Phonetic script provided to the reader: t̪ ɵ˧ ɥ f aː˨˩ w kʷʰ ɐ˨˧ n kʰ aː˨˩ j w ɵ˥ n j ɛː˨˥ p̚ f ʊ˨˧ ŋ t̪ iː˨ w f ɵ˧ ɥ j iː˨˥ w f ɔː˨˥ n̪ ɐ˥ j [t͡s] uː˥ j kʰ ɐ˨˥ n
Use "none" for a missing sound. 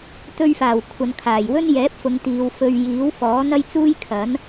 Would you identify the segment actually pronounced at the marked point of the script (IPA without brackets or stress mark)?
t͡s